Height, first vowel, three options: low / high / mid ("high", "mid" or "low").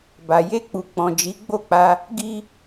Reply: low